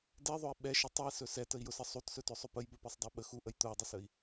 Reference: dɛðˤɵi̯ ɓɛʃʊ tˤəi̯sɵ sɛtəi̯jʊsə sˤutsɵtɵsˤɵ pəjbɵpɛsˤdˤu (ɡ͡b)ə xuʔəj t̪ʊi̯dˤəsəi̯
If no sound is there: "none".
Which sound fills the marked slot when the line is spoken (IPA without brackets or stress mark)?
ɓ